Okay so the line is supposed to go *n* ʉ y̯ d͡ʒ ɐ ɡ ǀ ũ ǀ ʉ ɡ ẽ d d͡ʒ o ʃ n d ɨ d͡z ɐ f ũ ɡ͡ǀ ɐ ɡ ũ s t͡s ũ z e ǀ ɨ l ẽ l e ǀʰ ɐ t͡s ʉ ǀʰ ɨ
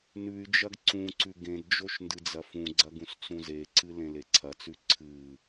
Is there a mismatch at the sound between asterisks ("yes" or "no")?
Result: no